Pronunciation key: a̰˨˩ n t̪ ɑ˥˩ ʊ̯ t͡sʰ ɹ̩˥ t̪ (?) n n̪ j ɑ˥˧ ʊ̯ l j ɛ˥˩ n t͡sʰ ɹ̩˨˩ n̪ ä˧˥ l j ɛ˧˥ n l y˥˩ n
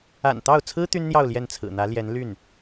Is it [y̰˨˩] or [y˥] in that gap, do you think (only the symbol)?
y˥